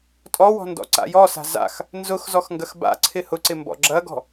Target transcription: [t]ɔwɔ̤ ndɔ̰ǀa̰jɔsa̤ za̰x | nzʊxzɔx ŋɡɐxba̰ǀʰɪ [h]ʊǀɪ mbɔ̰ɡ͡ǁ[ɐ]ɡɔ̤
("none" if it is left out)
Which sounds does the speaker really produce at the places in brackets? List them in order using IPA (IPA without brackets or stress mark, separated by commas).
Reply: tʼ, h, ɐ